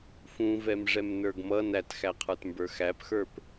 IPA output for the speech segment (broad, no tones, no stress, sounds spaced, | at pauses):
f ũ v ɛ m ʐ ɛ m n ə˞ ɡ m ʌ n æ t x æ qʰ ə˞ t m b ə˞ x æ p x ə˞ p